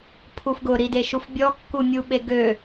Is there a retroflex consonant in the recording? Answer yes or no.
no